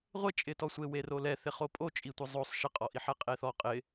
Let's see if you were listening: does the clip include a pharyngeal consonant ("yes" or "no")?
yes